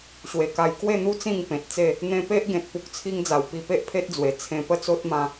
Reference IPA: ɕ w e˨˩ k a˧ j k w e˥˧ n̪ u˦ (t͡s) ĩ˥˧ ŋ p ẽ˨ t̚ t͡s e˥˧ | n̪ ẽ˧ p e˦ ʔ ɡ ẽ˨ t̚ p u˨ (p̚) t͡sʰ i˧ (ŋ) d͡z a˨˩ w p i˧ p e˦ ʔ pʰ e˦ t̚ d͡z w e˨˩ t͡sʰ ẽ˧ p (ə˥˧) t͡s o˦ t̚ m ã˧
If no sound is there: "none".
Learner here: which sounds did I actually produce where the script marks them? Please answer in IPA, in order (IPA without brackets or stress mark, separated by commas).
t͡s, k̚, ŋ, ə˥˧